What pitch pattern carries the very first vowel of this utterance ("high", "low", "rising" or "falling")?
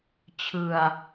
low